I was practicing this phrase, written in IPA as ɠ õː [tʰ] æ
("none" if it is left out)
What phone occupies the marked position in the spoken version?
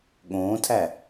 tʰ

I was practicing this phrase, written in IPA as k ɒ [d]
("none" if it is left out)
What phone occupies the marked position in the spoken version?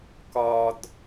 d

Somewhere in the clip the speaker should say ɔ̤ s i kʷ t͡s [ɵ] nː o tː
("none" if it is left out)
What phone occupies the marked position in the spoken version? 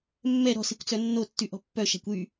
œ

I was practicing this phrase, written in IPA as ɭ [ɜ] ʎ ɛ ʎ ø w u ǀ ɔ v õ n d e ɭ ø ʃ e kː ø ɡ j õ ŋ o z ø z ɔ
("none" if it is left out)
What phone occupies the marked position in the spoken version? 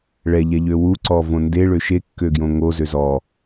ɛ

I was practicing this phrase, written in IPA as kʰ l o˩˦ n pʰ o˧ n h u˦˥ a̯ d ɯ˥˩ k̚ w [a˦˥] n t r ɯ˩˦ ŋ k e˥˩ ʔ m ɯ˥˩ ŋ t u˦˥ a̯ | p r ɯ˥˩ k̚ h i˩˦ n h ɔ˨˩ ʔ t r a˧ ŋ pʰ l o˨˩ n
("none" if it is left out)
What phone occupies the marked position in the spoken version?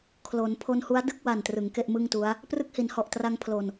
a˨˩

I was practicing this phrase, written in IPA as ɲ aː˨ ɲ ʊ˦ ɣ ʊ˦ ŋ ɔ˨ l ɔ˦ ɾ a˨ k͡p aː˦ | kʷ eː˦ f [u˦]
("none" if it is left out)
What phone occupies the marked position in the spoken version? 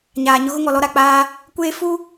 u˦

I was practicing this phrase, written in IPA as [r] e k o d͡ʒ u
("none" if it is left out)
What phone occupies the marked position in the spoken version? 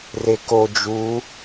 r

